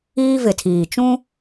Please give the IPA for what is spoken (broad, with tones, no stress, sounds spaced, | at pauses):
iː˦ v ɪ˨ tʰ iː˨ t͡ʃ ũ˦